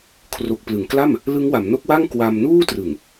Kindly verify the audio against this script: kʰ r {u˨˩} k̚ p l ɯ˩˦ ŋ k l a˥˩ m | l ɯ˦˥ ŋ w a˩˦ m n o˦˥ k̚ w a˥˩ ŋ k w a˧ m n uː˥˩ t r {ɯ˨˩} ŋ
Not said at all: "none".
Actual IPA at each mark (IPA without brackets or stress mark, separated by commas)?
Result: o˨˩, ɯ˨˩